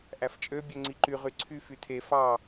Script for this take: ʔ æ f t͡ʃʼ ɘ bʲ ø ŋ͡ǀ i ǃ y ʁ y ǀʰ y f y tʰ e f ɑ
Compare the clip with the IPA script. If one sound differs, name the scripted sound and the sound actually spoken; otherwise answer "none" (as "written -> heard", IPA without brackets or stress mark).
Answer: ɘ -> ø